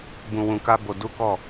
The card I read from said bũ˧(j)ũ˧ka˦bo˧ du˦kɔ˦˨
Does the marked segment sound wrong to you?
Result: yes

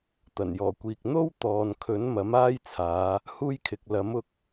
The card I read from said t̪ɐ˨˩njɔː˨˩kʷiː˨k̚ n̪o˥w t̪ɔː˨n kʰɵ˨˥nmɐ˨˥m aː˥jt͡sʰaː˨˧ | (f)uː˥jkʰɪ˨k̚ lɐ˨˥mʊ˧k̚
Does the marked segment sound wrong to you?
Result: yes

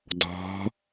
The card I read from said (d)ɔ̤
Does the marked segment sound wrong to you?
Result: no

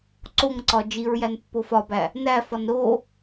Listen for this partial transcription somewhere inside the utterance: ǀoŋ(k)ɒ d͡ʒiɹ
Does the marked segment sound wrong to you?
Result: yes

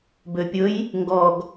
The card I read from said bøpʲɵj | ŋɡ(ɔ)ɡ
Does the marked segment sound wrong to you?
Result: no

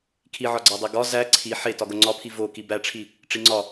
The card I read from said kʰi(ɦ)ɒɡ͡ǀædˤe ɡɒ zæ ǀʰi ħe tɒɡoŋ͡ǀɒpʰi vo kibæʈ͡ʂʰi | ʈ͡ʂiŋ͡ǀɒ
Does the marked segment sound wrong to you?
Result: yes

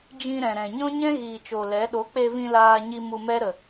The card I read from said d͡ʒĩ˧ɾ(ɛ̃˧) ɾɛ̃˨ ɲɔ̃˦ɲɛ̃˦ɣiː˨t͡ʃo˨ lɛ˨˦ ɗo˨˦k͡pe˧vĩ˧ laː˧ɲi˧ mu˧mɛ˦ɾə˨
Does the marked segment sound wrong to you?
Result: yes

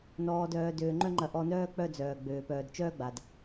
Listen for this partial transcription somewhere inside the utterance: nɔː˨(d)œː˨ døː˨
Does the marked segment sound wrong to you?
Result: no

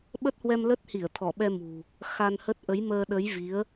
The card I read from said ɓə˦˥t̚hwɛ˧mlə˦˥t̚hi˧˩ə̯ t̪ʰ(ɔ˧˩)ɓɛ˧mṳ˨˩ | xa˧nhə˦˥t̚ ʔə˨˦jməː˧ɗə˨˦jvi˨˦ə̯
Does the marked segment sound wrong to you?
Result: no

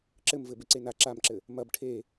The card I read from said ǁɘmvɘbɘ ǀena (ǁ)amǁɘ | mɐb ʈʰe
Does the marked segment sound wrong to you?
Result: no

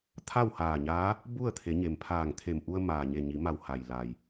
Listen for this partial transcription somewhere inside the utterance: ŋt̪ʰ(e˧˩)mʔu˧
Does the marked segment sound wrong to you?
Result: no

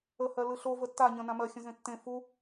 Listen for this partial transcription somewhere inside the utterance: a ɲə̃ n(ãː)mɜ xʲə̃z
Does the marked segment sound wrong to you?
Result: yes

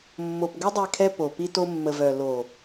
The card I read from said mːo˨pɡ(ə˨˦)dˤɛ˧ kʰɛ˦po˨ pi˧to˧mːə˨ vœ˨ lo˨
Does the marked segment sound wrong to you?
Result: yes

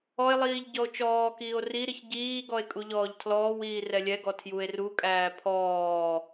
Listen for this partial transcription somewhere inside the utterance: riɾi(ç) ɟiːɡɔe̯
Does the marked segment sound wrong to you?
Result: no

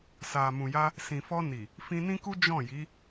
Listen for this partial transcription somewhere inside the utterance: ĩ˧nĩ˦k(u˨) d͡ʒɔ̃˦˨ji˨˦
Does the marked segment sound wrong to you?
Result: yes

